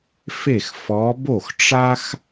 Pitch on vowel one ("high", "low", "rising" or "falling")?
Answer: falling